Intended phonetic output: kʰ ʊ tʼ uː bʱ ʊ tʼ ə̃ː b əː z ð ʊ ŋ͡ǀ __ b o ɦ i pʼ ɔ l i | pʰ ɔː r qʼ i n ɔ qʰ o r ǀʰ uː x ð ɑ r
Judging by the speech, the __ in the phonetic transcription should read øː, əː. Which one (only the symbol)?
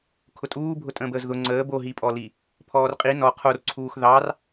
əː